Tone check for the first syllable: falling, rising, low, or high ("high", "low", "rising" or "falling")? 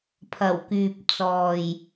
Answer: low